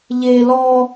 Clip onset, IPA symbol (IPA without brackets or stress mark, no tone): ʎ